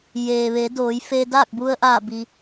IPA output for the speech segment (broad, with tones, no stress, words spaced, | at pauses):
jeː˩ʋe˩˧ doː˩˧jfe˧ daː˥˨k̚bu˧ə̯ʔaː˧˩ bi˩